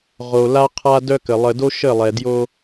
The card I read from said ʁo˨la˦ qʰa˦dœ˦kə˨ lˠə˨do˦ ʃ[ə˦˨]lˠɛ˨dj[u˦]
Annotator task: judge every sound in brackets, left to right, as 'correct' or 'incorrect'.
correct, incorrect: o˦

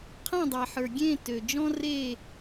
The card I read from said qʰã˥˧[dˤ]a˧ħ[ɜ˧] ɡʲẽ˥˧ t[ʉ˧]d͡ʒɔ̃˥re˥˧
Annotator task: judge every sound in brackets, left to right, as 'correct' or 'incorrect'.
correct, incorrect: ə˞˧, incorrect: ø˧

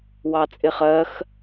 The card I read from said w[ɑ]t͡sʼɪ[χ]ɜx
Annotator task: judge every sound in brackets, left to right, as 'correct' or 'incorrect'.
correct, correct

